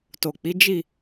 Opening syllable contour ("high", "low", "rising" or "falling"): low